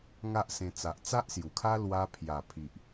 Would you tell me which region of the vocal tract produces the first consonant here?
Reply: velum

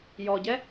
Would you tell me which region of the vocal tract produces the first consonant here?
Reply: palate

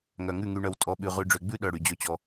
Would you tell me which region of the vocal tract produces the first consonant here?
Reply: velum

